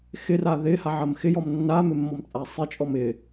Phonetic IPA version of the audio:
x ɪ r a ð ɪ h a ʕ ɐ m x ɪ j ɔ m nː a m ɪ mː ɔ m t͡sʼ a sˤ ɪ t͡ʃʼ ɔ m ɪ

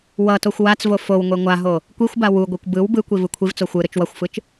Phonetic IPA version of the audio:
w ʌ t o xʷ w a t͡s v o f o w ŋʷ e ŋʷ a ɦ o | kʷ i xʷ b a w u ɡʷ e kʷ b ɯ w b ɯ kʷ i v ɯ kʷʰ i v t͡s o xʷ ɯ ɾ ɯ t͡ʃ w ʌ xʷ f ɯ t͡ʃ

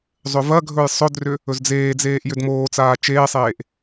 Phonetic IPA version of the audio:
zˤ ʏ v ɐ ɡʱ ɵ j sˤ ɵ d r ʏ | ɵ z d͡z eː d͡z eː ʔ j ʏ d m oː t͡s aː t͡ʃ eː sˤ eː ʔ

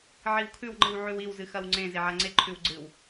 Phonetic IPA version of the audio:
ʕ i w kʰ ʉ w ŋ͡ǃ ɨ w ʕ ʉ w i w z ɨ x ɐ w ŋ͡ǀ ẽ z e ʕ a ŋ͡ǀ e ǃʰ ʉ w ɡ͡ǀ ɨ w

